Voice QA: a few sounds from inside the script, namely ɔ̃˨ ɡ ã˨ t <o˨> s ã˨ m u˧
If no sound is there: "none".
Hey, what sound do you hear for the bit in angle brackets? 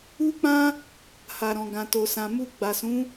o˨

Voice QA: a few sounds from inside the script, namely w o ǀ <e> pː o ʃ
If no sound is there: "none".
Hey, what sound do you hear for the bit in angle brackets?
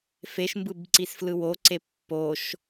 e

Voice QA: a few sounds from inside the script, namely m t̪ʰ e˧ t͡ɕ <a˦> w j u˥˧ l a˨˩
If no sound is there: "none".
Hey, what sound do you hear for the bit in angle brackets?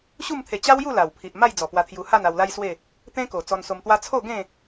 a˦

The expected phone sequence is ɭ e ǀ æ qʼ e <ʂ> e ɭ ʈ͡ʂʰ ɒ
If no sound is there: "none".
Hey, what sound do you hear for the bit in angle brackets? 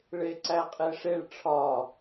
ʂ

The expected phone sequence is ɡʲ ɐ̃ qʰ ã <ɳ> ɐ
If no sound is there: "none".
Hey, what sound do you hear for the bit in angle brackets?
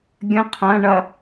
ɳ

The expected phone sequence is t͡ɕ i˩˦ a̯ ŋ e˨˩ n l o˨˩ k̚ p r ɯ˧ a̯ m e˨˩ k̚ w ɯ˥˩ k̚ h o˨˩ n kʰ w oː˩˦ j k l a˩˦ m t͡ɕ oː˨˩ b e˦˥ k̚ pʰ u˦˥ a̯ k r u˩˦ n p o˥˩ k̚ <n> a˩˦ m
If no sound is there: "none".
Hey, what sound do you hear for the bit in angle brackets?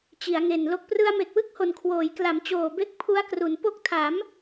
tʰ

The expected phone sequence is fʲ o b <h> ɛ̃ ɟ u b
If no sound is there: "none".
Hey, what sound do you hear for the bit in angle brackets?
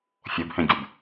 h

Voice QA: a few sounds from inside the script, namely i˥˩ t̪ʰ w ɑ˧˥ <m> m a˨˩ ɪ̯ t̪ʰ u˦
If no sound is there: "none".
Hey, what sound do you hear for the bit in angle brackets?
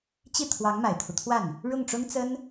ŋ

